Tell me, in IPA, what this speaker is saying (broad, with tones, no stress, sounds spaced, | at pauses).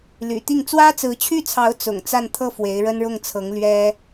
l y̰˨˩ t̪ i˥˩ ŋ t͡s w ä˥ t͡s ɹ̩˧˥ t͡ɕʰ y˥˩ t͡sʰ ɑ˧˥ ʊ̯ t͡s ʊ̰˨˩ ŋ t͡s a˥˧ n t̪ʰ ɤ˥˩ f w e˧˥ ɪ̯ ɻ ə˥ n ɻ ʊ˥˩ ŋ t͡sʰ ɤ˧˥ ŋ l ɥ ɛ˥